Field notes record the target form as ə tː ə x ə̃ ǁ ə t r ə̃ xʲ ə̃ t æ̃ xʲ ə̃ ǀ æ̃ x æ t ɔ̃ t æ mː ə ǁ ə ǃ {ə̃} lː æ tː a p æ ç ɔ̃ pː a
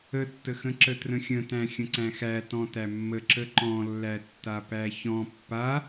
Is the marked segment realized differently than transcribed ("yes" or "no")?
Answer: yes